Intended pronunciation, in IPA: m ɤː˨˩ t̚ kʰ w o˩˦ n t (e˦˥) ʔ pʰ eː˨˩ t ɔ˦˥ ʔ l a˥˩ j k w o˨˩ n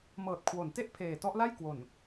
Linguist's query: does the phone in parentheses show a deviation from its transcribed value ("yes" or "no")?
yes